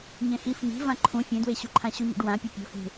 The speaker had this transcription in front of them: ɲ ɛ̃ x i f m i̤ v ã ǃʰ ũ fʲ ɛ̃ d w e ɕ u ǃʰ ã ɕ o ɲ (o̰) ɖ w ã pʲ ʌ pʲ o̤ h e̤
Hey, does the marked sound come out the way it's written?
yes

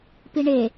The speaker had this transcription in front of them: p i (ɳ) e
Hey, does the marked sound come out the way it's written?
yes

